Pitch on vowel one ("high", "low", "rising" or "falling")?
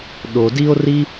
low